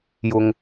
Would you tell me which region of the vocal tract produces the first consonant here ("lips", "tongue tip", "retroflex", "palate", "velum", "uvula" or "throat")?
palate